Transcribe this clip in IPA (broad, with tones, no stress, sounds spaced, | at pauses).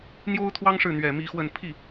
n̪ j o˥ ʊ̯ t̪ʰ w ɑ˥ ŋ ʂ ɻ̩˥˩ n̪ ɥ ɛ˨˩ m i˧˥ x w ə˥˧ n pʰ i˥˩